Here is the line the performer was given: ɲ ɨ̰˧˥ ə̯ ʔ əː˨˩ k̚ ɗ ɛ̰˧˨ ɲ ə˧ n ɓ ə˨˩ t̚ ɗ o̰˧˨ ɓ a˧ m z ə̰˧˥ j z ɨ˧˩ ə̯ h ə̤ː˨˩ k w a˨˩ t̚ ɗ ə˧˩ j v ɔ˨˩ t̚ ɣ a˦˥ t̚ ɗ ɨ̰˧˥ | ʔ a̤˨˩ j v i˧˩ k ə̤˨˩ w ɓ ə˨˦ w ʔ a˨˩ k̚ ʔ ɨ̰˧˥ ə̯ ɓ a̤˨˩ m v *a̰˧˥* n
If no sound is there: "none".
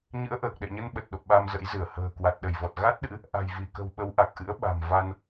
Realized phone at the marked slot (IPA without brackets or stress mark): a˧